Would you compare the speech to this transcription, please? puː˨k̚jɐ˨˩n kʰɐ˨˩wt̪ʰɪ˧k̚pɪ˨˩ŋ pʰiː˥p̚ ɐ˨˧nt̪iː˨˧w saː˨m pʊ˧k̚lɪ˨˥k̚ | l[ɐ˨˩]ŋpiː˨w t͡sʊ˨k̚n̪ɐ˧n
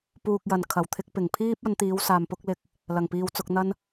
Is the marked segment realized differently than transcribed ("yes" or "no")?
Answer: no